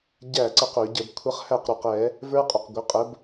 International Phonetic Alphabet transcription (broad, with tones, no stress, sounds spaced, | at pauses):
ɟ æ˥˩ ǀ ə˥˩ q ʊ˧˩˧ ɟ ə˧˩˧ b kʷʰ ʌ˦˥ χ h æ˥˩ q ɾ ʊ˨˩ q ɛ˧˩˧ | v ə˞˦˥ qʼ ʊ˨˩ q ɡʷ ə˩˥ qʼ ə˩˥ b